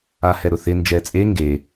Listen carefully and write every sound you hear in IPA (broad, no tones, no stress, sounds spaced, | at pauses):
a h ɛ ɾ ʊ θ ɪ n d͡ʒ ɛ t͡sʼ e ŋ ɡ e